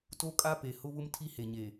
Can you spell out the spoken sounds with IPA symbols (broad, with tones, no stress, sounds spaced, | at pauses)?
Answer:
t o˦ kʼ a˦ p e˨ h ʊ˦ β ʊ˦ m tʰ i˦ h e˨ ɲ e˨